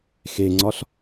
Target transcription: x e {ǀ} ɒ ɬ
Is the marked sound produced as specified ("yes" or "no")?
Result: no